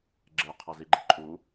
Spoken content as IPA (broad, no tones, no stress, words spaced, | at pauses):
ɡ͡ǁe qʰʌziɡ͡ǃi̤ǃʼu